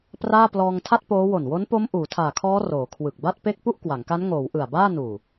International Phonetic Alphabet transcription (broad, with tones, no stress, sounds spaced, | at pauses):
p r aː˥˩ p l ɔː˧ ŋ tʰ a˥˩ t̚ p oː˦˥ w o˨˩ n w o˦˥ n p o˦˥ m ʔ uː˩˦ tʰ aː˨˩ kʰ ɔː˦˥ r oː˩˦ kʰ w ɯ˨˩ k̚ b a˥˩ t̚ p e˥˩ k̚ p u˥˩ ʔ k w a˩˦ ŋ k a˦˥ n ŋ oː˩˦ w ʔ ɯ˨˩ a̯ b aː˥˩ n uː˨˩